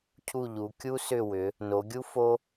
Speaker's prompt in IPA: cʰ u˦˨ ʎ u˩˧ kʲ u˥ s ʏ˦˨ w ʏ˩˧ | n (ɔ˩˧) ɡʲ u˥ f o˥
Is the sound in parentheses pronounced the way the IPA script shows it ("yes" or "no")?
no